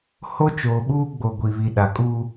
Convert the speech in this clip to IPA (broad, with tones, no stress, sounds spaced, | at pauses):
h o˦ t͡ʃ oː˨ ɓ uː˦ ɡ͡b o˨ ɡʷ i˨ β i˨ ɗ a˨ kʼ uː˦